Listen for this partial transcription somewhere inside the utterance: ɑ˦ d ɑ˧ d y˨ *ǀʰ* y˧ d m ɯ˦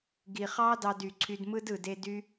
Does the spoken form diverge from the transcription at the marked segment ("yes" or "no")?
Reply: no